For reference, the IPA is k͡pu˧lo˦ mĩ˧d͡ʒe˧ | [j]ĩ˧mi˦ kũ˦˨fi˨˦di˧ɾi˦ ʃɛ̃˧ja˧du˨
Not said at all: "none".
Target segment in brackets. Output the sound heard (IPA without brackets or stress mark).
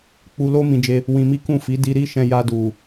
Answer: w